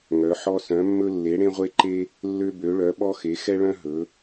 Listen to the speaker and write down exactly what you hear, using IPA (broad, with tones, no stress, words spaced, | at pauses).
ŋœ˨˦ħɔ˦ sœ̃˨˦mːɵ˦ lːe˨˦ɽẽ˦ʁʷe˦ǃe˦ | lːø˦ bø˨˦ɭœ˨˦ɓɔ˦ xe˨˦xɛ˦ɭœ̃˦ ɦɵ˨˦